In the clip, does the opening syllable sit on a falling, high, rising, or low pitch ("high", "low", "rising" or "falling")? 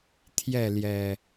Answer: falling